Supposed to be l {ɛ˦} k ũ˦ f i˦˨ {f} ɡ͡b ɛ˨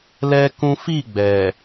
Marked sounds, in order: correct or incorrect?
correct, incorrect

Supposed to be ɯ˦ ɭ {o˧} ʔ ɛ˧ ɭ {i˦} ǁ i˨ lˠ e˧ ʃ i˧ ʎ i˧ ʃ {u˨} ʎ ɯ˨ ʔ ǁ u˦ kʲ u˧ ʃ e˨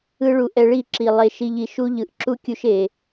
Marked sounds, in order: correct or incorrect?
incorrect, incorrect, incorrect

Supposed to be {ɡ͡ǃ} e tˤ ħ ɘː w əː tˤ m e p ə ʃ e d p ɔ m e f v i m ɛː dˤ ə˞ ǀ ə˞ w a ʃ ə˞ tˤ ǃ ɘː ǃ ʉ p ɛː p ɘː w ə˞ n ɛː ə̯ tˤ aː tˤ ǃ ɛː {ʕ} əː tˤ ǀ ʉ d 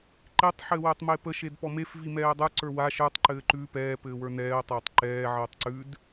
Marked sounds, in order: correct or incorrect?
incorrect, correct

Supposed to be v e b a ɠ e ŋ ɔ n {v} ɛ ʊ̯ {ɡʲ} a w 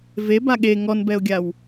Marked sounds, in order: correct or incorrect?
incorrect, correct

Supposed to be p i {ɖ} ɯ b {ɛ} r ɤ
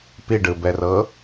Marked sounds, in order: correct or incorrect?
correct, correct

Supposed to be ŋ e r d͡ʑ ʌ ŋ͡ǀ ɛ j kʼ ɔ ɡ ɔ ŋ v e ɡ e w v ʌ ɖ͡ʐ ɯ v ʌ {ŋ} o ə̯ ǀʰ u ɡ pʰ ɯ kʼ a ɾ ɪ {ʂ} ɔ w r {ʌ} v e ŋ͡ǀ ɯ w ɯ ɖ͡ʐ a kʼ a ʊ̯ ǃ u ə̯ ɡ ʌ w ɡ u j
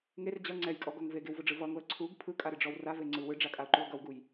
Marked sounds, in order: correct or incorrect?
correct, incorrect, incorrect

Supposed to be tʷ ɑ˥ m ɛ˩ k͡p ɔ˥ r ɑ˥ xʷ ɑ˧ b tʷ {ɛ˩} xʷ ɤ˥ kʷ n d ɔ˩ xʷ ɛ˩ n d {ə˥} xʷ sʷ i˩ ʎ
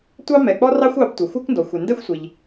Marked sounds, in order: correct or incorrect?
correct, incorrect

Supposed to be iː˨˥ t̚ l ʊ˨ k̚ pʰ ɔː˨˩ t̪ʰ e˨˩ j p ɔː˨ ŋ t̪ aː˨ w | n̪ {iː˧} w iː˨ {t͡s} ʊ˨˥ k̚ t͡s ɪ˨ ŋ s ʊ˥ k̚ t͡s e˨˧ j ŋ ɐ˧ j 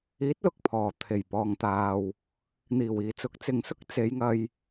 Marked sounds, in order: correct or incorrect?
incorrect, correct

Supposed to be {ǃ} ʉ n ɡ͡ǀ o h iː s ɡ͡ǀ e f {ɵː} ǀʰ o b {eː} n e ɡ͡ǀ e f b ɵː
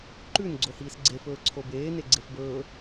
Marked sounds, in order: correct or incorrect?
correct, correct, correct

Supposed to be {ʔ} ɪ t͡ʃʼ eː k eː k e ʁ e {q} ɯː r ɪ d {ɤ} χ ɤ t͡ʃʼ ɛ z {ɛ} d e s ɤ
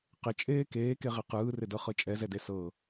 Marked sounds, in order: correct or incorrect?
incorrect, correct, correct, correct

